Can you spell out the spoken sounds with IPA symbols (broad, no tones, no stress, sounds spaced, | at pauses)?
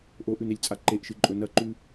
ʔ o ʔ ʉ n e lʲ t͡sʼ a ǃ e ʔ ʃ ɨ ǃʼ ɵ n ɐ ǃ ʉ